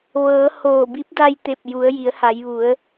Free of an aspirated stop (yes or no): yes